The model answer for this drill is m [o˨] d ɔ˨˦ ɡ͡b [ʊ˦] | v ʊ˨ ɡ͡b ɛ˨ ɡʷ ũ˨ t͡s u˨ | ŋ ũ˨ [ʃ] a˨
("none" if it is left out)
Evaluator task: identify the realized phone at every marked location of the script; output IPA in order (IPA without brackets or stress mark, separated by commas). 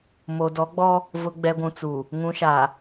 o˨, ɔ˦, ʃ